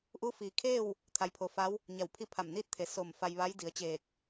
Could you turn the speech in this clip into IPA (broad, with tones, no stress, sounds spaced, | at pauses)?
ʔ u˧˥ f iː˩ kʰ eː˥˨ w | t̪ʰ a˧˥ j pʰ o˧ f a˧˥ w | ɲ a˧˩ w pʰ i˥˨ pʰ a˧˩ m n iː˥˨ t̚ t̪ʰ e˩ s o˧˩ m f a˧ j ʋ a˧˥ j d i˩˧ ə̯ t͡ɕ eː˧˩ k̚